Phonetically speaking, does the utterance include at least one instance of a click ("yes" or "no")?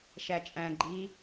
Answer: yes